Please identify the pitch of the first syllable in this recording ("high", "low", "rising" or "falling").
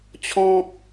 high